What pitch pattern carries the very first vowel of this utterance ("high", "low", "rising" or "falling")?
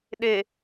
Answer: low